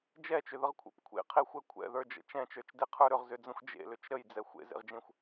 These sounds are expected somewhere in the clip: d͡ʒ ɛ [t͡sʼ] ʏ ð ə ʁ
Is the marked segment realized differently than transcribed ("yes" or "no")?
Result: yes